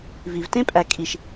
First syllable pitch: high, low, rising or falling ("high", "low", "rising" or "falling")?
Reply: low